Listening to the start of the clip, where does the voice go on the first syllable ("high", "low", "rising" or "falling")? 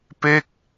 falling